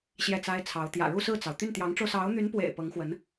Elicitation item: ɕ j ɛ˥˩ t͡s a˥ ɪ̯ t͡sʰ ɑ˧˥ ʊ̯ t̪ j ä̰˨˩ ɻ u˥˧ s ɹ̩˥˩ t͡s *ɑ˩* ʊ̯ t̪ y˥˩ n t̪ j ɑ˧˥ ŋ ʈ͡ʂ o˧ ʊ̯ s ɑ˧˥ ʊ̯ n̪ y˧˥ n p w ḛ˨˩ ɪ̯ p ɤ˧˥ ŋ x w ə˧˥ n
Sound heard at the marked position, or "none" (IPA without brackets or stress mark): ɑ˩